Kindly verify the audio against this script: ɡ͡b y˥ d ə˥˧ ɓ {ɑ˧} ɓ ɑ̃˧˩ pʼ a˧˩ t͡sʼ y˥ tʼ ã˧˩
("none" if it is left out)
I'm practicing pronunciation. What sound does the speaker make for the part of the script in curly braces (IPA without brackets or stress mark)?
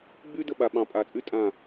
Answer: a˧